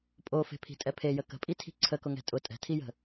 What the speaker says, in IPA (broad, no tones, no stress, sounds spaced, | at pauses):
pʼ o f e̤ pʰ i̤ tʼ ɛ pʰ e j ə k ə̤ pʼ i tʰ i̤ ǀʰ ə k ʊ ŋ ɛ̤ tʼ ʊ tʼ ɛ̤ tʰ i j ə̤